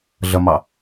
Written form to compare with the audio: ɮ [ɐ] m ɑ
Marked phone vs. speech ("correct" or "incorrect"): correct